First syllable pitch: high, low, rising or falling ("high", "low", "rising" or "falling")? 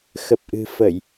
low